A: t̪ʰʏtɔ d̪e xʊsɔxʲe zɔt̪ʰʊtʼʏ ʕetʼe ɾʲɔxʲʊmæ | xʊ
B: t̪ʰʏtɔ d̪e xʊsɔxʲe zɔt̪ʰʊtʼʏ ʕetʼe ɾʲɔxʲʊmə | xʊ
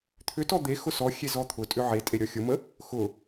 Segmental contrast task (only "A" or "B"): B